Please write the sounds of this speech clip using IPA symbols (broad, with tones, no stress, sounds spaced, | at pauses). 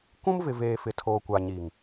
kʷ ũ˦ m v ɪ˨ v eː˨ f ɪ˨ tʰ oː˨ kʷ a˨ ɲ iː˨ ŋ